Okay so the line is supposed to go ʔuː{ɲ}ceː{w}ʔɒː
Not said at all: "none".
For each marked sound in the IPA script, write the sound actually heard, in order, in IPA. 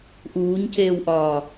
ɲ, w

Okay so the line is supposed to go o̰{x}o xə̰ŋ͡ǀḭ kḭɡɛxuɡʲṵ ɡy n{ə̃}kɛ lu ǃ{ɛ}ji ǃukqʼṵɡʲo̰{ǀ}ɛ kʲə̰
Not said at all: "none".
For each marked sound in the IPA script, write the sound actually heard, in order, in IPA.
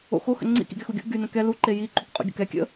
x, ə̃, e, k

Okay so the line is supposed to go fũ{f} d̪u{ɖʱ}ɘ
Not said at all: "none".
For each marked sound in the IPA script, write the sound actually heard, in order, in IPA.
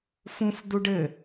f, ɖ

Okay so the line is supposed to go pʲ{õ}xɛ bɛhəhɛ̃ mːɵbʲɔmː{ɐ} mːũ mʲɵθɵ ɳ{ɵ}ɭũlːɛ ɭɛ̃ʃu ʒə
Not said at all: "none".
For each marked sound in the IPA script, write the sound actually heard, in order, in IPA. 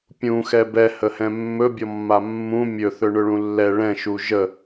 ũ, a, ɵ

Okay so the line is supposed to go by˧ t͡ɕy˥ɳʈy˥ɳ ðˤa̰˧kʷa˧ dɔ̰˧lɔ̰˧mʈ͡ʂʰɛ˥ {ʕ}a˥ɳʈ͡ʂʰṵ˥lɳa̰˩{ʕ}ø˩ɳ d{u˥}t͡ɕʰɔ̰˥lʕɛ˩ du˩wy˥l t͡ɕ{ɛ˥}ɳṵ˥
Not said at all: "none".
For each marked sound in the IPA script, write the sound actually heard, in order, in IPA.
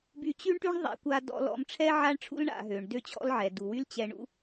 ʕ, ɦ, ø˥, ɛ˧

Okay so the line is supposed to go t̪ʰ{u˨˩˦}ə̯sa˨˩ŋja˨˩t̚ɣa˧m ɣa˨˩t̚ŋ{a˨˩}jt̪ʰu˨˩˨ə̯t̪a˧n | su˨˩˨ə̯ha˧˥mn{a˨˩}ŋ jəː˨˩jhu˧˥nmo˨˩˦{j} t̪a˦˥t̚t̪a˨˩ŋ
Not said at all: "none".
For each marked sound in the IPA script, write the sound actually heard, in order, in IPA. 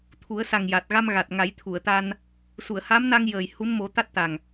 u˨˩˦, a˨˩˦, a˧, none

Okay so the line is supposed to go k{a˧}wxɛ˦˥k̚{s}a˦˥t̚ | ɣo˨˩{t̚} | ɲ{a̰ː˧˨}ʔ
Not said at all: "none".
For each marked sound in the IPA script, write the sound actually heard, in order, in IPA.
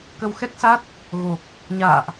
ə˧, s, k̚, a̰ː˧˨

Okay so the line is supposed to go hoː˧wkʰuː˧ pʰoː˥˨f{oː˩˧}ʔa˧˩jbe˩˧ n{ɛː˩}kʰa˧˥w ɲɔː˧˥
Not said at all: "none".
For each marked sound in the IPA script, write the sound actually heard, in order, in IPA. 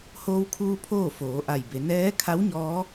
oː˩˧, ɛː˧˥

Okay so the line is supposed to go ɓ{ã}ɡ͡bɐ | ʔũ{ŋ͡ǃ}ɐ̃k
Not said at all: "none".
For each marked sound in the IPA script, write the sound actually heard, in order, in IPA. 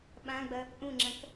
ã, ŋ͡ǁ

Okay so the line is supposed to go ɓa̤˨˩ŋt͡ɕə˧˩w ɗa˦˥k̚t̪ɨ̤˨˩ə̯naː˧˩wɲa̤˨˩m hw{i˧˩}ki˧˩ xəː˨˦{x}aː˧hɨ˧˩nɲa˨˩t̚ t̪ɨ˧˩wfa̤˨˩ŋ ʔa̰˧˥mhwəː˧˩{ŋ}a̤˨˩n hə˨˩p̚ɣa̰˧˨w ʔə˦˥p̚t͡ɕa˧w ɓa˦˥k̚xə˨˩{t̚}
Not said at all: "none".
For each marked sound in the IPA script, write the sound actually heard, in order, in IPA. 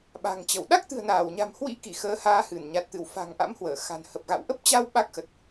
ḭ˧˥, h, x, t̚

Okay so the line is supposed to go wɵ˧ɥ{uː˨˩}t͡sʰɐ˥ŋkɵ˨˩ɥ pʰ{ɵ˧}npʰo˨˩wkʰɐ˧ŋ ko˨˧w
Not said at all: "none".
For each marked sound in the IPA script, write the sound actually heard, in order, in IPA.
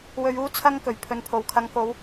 uː˥, ɵ˨

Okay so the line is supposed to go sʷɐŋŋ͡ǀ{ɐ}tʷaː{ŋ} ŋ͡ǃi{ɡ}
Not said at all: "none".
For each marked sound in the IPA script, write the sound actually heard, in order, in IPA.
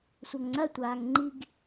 ɐ, ŋ, ɡ

